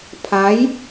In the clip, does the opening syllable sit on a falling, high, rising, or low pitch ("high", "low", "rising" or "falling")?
rising